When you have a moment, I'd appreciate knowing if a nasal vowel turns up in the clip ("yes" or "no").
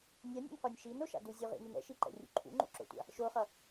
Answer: no